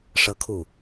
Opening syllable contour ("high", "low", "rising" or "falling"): high